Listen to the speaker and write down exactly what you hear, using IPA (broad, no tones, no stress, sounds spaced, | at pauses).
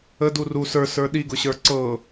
ə d u r u s ə˞ s ə˞ ɗ i ɡ ʊ ɕ ə˞ ǀ ɤ